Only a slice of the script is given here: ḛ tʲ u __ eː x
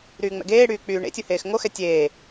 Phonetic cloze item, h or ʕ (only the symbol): h